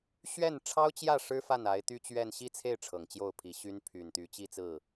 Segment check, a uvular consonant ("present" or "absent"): absent